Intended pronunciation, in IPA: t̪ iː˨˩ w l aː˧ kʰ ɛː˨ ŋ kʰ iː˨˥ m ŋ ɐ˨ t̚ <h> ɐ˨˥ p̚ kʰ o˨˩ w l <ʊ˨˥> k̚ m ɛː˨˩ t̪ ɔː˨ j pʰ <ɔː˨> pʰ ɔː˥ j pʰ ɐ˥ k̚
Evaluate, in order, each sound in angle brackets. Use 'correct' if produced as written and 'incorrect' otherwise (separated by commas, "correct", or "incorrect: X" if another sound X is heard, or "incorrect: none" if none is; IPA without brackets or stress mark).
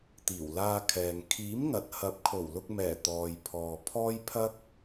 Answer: correct, incorrect: ʊ˧, correct